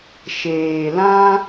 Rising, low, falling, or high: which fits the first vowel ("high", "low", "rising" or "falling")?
low